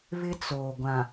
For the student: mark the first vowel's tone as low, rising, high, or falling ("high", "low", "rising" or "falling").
high